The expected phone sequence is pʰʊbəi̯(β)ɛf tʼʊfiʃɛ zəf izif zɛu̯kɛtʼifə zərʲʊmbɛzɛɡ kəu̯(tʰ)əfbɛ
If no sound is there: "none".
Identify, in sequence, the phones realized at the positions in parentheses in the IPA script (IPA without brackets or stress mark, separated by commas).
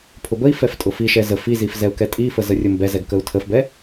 f, tʰ